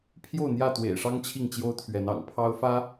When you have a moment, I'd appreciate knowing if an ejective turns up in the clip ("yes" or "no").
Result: no